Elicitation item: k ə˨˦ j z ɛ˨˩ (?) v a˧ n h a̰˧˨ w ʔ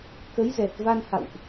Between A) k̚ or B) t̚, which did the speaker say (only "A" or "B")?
B